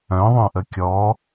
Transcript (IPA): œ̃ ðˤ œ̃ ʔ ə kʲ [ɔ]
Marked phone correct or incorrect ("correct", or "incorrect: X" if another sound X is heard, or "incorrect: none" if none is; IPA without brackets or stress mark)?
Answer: correct